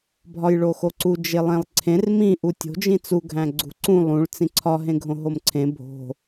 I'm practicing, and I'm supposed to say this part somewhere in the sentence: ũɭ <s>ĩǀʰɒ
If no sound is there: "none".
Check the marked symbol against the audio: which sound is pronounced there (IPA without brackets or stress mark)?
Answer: t͡s